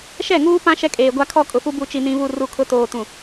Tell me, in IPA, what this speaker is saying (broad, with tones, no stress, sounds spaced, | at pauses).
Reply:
ʃ ɛ˦˨ ŋ uː˦ p ã˦ ʃ ɛ˦ kʼ eː˨ ɡʷ a˦ kʰ ɔ˦ kʼ ʊ˨ f u˦ b u˦ t͡ʃ i˦ n ĩ˦ β u˦˨ r u˦˨ kʰ ʊ˦ t oː˨ t ũ˨